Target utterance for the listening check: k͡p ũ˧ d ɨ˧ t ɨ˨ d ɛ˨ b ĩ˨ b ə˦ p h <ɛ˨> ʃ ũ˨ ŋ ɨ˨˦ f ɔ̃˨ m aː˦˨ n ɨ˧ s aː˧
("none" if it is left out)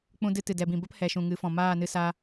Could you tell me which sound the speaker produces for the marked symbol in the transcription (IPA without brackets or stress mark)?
ɛ˨